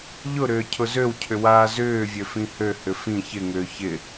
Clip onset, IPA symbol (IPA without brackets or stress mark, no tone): ʎ